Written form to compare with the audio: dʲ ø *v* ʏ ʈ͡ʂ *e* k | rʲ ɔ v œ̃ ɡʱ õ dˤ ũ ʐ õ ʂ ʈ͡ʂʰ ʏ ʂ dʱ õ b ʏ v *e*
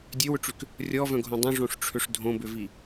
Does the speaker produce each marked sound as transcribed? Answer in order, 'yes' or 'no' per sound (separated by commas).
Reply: no, no, no